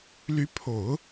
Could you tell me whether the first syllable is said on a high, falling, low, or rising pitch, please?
rising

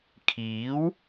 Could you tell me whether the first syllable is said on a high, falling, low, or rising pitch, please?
rising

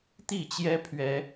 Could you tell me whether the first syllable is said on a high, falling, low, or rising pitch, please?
falling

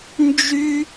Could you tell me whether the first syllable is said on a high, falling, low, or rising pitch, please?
high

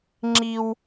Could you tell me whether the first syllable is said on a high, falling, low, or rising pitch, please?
high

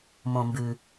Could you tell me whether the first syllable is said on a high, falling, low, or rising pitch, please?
low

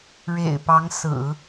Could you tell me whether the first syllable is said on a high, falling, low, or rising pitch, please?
low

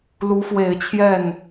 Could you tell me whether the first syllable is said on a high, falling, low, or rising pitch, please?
rising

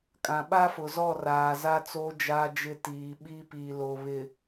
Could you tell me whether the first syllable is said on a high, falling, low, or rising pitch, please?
low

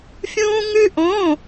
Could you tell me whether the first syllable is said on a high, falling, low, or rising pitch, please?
high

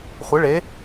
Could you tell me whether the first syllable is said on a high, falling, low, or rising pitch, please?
rising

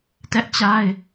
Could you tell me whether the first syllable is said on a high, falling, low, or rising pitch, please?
high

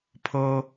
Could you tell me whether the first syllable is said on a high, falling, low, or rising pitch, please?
high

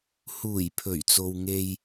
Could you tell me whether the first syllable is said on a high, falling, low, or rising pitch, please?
low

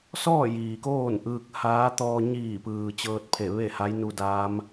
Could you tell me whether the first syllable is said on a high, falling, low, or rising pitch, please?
falling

